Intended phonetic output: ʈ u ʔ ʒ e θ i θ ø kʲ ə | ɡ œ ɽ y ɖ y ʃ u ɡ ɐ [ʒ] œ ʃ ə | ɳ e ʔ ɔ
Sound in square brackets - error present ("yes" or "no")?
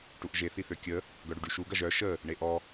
no